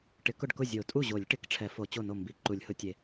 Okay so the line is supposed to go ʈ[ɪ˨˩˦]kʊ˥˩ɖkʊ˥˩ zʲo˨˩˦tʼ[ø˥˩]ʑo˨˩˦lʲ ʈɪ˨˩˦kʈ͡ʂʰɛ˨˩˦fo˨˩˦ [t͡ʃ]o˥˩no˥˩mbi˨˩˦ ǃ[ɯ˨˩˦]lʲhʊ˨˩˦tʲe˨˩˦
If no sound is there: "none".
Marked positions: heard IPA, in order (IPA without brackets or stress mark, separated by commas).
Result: ɪ˨˩˦, u˥˩, t͡ɕ, u˨˩˦